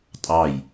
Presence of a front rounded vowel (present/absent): absent